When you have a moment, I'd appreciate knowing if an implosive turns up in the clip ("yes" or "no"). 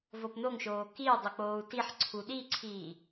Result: yes